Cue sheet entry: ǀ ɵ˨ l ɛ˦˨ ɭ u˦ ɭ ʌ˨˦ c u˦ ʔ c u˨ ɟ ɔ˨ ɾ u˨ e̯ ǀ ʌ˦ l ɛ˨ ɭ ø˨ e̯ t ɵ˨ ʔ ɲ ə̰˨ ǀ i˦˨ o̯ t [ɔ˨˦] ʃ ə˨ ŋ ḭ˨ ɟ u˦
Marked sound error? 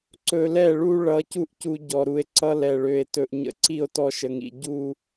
yes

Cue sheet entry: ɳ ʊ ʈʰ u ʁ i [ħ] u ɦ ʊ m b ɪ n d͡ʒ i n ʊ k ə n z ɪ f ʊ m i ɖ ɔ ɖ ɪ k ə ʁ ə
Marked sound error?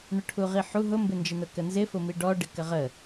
no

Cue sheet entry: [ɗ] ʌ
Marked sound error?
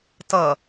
yes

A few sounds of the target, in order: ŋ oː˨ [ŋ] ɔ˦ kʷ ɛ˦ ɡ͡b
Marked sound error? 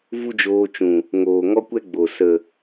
no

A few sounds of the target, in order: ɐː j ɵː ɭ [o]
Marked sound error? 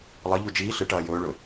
yes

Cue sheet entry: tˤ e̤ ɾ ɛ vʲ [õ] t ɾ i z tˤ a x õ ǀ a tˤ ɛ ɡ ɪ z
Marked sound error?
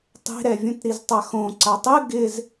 yes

